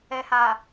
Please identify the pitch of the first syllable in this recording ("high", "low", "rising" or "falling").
low